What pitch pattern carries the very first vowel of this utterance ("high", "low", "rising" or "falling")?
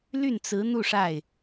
falling